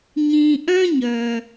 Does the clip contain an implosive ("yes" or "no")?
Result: no